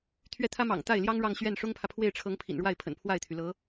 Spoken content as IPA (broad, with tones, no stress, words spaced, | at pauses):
t̪ʰɥɛ˥˩t̪ʰä˥mɑ̰˨˩ŋ t̪a˥˩ɪ̯ljɑ˥ŋ ɻɑ˥˧ŋɕɥɛ˥˩n ʂʊ˥ŋpʰä˨pʰwe˥˩ɪ̯ʈ͡ʂʰɤ˧˥ŋ pʰḭ˨˩nɻwa˥˩ɪ̯pʰə̰˨˩n pʰwa˥˩ɪ̯t̪ʰy˩lɤ˧˥